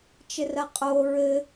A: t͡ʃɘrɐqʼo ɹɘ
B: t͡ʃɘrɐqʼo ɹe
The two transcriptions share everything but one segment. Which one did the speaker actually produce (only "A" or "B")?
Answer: A